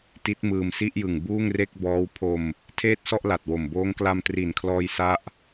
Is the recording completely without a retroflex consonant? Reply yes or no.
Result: yes